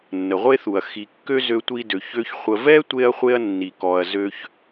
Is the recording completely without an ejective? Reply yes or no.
yes